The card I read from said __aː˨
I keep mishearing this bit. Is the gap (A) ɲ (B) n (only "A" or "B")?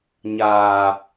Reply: A